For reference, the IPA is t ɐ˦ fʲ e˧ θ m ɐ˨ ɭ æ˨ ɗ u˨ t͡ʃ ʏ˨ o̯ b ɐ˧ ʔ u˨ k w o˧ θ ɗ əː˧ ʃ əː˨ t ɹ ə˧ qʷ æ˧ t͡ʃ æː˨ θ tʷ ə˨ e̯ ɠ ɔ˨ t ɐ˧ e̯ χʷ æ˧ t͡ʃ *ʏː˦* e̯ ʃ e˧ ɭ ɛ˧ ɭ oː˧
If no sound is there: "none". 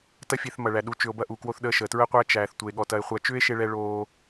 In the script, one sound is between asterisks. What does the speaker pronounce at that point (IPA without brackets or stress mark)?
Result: ʏː˦